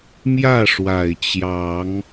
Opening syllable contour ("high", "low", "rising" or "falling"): falling